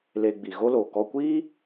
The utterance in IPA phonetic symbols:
le˧ɡ͡bi˨ɣo˦lo˨ kɔ˧kʷiː˦

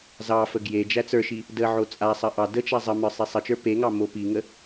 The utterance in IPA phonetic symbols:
zɑfə ɡje d͡ʒæt͡sə˞ʃi | dəʕo t͡sʼasˤə ʔɑ dət͡ʃa zˤəmə˞ sˤisˤət͡ʃə˞ peŋɑ mopiŋə

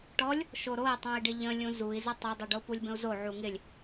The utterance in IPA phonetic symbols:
ʈɔlʲ | ʃoɾoi̯tˤũi̯ɖɪ ʎə̃lʲũ zui̯ zɪtˤedˤuɖo pulʲbə̃u̯zo ʕuŋɪlʲ

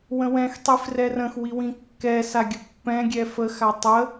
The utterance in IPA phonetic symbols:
wə̃wɛ̃xtˤi frɛrə̃xwi wĩkːɛsa ɡʲəpːɛ̃ɡʲɛ fəxa tˤə

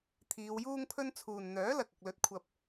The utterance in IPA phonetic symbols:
t̪ʰiː˨˧wjuː˥ŋpʰɵ˥n t͡sʰuː˨nn̪œː˨˥ lɐ˨k̚ɐ˨k̚lɵ˨˥t̚ kʷʰɐ˧p̚

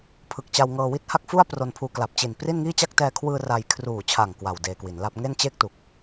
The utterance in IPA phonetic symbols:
pʰɯ˨˩k̚t͡ɕa˧wŋɤː˧wi˥˩t̚ ha˥˩k̚fu˥˩a̯pro˧npʰuː˧ kla˨˩p̚t͡ɕi˨˩n pri˥˩nŋiː˥˩t͡ɕa˥˩k̚ tɛː˧kʰwɯː˧ ra˧j kʰruː˨˩t͡ɕʰa˨˩ŋ kwa˨˩w deː˧kwi˩˦nla˥˩p̚ ŋe˥˩nt͡ɕe˥˩k̚tu˨˩k̚

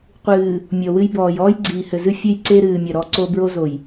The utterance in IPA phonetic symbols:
qʷɨː˨ | mʲɔ˨wɨ˦j bɔː˨j ɔː˦jɡ͡ǀiː˨hɘ˨zɨ˦ fʲɘ˦jǀe˦ɾɨː˨mʲɐ˨ ɾɔ˦ǀo˦ bɹo˦zo˨j

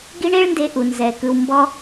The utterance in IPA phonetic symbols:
ɡi˦ɳe˦ɭnde˧ ʔu˨nzɛ˨kɯ˧w mbɔ˦

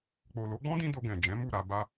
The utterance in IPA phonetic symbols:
k͡po˨lo˨˦ɡ͡bɔ̃˦dĩ˧ do˧ɡɛ̃˨ d͡ʒɛ̃˨˦mu˦˨ɾa˧ ba˧

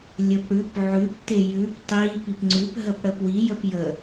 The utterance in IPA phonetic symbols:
lʲəpɽʉp ʕʉp tejʉp tˤi pipŋ͡ǀʉp ɦəpɽəpwi jəpjə

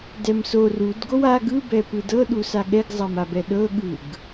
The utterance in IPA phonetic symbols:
dɛmsor udɡow a ɡɯbɛ pɯdɤɗusa ɠɛɡzˤamabɛ ɗɤɠɯɡ

